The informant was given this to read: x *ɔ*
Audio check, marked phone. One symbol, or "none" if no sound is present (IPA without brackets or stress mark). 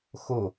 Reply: o